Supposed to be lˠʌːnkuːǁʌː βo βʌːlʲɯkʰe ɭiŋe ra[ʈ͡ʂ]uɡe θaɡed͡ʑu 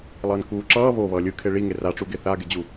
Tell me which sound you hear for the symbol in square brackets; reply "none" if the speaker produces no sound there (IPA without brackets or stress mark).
ʈ͡ʂ